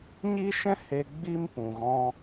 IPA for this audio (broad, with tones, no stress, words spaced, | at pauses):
ɲi˦ʃɛ̃˦ he˧ ɡ͡bi˦m pũ˨ɣɔ̃˧